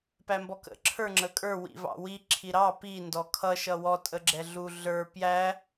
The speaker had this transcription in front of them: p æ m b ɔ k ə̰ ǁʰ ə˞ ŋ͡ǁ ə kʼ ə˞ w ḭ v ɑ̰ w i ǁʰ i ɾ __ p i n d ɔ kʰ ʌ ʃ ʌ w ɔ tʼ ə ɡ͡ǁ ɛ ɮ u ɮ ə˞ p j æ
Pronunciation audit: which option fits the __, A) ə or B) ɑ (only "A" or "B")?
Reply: B